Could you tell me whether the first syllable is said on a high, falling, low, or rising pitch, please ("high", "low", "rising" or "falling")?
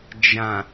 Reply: low